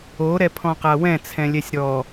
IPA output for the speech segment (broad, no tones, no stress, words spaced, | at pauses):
o ɾɛpʰɔ̃qawɛ̃ t͡sʰɛ̃lʲɛsʲɾɔ